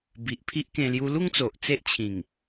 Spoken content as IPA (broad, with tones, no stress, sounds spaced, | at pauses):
b i˨ ʔ pʰ i˦ ʔ k ẽ˧ l j u˧ l u˥˧ ŋ t͡s o˨ ʔ t͡s e˦ ʔ t͡ɕʰ ĩ˨˩ ŋ